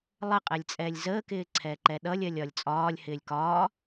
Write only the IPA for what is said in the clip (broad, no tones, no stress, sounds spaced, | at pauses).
lˠ ə qʼ ɛ lʲ t͡sʼ ɛː lʲ z əː k ɪː ǀʰ ɛː ǃ ɛ ɗ ʌ lʲ ɜ lʲ ɒ lʲ t͡sʼ ɒː lʲ h ɪː lʲ k ɒː